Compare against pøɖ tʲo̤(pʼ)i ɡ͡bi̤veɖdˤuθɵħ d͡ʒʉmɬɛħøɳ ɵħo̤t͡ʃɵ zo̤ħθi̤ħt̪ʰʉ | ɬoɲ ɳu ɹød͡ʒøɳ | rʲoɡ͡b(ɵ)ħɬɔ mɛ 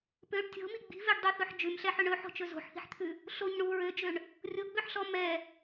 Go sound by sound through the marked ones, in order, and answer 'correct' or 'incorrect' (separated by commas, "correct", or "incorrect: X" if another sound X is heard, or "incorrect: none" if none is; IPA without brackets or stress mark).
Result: incorrect: m, incorrect: ø